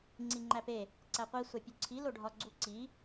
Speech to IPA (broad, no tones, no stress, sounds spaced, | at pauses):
ŋ͡ǀ i ŋ͡ǃ æ p e | ǀ æ qʷ i sʷ æ pʲ u ǀʰ i l o ɖʱ ɒ ɡ͡ǀ u ǀ i